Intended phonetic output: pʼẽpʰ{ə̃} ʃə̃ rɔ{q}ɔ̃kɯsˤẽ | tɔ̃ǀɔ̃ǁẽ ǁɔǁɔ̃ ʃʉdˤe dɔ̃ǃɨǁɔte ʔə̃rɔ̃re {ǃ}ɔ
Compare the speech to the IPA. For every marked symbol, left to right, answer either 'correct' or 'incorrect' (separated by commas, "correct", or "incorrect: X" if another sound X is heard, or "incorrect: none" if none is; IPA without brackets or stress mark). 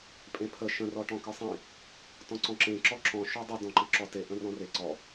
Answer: incorrect: ə, incorrect: ʈ, incorrect: ǀ